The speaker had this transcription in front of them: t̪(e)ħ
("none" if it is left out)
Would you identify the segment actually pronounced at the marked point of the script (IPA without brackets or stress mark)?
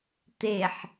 e